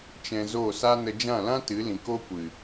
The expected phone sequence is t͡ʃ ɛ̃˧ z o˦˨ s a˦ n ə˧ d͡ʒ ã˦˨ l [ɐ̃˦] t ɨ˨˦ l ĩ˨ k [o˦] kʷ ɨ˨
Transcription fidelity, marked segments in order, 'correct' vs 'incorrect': incorrect: ã˦, correct

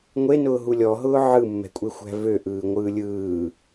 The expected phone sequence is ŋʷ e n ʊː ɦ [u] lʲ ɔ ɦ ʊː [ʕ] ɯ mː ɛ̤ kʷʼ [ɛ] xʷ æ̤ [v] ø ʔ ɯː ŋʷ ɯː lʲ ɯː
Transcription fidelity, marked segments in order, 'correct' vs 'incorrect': correct, correct, incorrect: e, correct

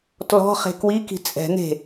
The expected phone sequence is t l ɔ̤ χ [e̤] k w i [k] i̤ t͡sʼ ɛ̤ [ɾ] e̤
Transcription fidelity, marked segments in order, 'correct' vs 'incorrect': correct, correct, incorrect: n̪

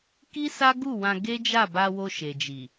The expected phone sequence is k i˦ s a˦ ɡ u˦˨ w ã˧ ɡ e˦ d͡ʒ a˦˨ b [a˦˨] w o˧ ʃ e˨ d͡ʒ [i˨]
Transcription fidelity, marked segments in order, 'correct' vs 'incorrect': incorrect: a˧, correct

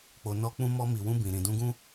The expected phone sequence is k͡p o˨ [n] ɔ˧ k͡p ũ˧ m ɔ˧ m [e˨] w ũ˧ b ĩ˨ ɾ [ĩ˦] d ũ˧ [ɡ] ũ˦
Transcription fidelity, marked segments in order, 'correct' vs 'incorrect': correct, incorrect: i˨, incorrect: ĩ˨, correct

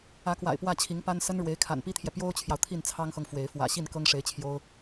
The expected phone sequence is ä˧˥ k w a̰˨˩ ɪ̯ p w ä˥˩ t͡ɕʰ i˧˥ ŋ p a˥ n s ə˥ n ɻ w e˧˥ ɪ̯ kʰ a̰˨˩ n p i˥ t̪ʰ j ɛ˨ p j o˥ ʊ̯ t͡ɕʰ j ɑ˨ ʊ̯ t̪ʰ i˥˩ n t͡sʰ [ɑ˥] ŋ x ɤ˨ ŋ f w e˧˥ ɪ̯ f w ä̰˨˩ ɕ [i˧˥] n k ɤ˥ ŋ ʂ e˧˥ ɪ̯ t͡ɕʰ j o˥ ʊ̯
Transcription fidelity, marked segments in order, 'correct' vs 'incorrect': correct, incorrect: i˥˩

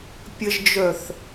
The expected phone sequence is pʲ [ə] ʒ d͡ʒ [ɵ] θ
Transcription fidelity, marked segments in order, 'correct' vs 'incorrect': correct, incorrect: œ

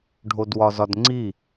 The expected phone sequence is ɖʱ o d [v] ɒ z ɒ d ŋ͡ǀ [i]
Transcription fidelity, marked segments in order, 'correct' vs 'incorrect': incorrect: w, correct

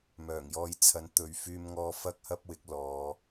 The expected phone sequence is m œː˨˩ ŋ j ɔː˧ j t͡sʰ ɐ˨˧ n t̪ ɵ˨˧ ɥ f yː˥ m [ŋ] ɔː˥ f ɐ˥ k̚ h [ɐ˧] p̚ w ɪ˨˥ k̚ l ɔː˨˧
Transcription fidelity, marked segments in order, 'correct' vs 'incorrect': correct, incorrect: ɐ˥

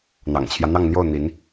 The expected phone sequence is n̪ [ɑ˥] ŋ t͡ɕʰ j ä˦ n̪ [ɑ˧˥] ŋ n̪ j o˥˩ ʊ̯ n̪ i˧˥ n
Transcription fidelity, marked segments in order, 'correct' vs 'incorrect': incorrect: ɑ̰˨˩, incorrect: ɑ˥˧

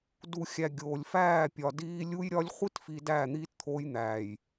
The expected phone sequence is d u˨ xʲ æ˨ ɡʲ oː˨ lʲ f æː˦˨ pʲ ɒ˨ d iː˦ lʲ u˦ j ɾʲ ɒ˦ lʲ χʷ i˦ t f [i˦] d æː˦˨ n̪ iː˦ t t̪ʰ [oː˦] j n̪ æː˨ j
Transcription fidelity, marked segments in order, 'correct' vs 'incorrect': incorrect: i˨, correct

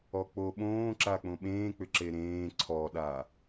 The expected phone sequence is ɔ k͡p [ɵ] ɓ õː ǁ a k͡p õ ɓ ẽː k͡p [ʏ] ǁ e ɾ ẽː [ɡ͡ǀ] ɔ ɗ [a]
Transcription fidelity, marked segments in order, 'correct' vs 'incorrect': incorrect: o, correct, incorrect: ǀʰ, correct

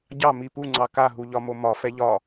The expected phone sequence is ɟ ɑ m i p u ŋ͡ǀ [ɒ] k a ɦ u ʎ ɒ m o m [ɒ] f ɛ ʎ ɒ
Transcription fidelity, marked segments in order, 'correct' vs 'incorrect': incorrect: ɑ, correct

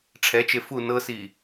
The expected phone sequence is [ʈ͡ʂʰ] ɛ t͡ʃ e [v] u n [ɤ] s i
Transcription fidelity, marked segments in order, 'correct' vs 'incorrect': correct, incorrect: f, correct

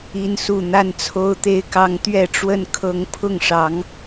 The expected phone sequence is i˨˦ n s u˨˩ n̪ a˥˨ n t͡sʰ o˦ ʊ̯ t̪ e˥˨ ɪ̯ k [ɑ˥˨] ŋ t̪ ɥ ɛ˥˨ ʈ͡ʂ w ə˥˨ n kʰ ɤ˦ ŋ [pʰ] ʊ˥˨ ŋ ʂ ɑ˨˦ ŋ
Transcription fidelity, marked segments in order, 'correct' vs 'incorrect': incorrect: ɑ˦, correct

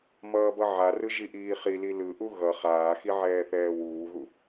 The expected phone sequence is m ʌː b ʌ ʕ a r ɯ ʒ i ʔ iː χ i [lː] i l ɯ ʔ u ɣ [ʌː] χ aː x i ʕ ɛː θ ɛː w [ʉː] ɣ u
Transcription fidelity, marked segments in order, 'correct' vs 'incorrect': incorrect: l, incorrect: ʌ, incorrect: uː

